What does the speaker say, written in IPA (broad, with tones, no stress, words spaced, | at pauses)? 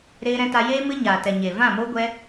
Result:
ɾeː˦ɾɛ̃˦ta˦ jeː˦ mɨ˦ɲaː˨tɛ˨ ɲe˨ vã˦˨mo˦ɡʷɛ˦